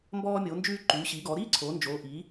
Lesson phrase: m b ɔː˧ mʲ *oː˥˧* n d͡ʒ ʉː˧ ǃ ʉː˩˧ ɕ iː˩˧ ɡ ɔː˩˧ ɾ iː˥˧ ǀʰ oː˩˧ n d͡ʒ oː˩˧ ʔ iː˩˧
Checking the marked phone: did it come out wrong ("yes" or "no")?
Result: yes